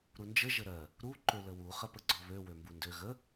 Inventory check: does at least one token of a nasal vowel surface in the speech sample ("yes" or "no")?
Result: no